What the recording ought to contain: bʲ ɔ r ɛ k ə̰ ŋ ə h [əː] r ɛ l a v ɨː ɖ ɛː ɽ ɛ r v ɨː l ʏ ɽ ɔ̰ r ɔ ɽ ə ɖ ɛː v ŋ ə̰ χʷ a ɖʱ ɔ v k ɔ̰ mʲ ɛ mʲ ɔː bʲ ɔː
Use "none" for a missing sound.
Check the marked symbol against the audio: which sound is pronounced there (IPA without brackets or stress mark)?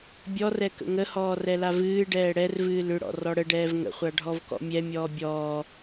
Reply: ɔː